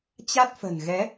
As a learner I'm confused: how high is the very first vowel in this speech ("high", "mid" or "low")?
low